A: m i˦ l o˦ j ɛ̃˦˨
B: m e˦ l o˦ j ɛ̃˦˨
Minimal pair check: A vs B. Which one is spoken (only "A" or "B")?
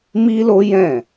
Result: A